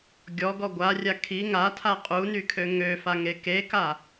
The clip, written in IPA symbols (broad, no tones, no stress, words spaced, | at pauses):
ɡʲɔɡɔ ɡʷarʲa kʰi ŋatʰa qʼunykʰø ŋøfaŋe keka